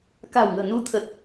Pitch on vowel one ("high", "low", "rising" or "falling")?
low